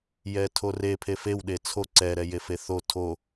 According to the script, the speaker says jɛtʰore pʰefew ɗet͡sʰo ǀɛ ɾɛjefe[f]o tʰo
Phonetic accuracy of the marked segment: incorrect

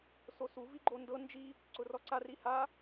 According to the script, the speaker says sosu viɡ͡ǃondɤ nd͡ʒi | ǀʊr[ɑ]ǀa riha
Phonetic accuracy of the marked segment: incorrect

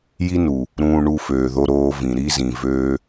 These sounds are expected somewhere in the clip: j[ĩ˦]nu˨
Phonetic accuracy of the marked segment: incorrect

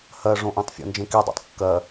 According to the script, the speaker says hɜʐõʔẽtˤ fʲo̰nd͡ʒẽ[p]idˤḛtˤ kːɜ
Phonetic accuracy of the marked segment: incorrect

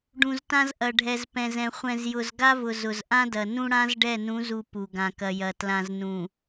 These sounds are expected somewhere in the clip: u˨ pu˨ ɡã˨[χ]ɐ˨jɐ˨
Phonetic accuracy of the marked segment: incorrect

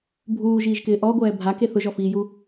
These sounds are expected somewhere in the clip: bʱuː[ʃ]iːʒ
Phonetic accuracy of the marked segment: incorrect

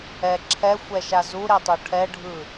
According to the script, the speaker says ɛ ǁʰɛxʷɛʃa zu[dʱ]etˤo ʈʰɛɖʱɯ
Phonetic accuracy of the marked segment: incorrect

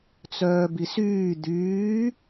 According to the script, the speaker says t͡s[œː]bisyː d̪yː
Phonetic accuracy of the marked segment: correct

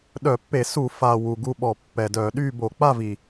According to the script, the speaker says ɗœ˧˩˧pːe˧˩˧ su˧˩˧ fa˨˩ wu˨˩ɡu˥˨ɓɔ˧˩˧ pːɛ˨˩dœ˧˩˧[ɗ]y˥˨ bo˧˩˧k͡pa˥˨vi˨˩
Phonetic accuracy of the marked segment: correct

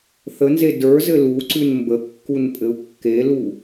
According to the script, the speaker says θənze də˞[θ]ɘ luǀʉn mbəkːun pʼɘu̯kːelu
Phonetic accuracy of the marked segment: incorrect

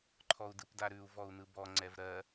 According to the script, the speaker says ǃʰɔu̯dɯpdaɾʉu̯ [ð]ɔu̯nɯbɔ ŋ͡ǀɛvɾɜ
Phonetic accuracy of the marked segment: incorrect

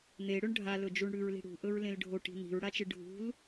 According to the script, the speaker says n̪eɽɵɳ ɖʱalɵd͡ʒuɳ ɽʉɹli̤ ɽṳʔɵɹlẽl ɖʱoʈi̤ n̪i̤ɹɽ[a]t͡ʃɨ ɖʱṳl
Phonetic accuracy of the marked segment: correct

